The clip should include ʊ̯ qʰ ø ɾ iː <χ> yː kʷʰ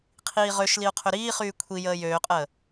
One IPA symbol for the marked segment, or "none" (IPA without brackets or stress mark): χ